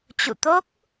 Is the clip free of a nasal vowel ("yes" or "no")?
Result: yes